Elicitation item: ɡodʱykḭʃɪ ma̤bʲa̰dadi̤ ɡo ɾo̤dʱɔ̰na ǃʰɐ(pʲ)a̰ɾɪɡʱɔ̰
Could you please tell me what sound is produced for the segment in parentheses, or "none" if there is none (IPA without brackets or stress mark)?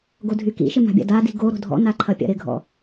pʲ